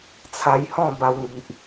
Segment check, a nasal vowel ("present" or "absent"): present